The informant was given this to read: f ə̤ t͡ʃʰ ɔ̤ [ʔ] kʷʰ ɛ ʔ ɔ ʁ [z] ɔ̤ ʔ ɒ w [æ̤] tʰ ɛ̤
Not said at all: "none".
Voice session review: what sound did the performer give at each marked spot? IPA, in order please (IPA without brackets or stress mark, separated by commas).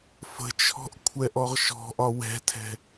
ʔ, ʃ, ɛ̤